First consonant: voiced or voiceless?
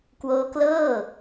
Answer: voiceless